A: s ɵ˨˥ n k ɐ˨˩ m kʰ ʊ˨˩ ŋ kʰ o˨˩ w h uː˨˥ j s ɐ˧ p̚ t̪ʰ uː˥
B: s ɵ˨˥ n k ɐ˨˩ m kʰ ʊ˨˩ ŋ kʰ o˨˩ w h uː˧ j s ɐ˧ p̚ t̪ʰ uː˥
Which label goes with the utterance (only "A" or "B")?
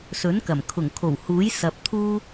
A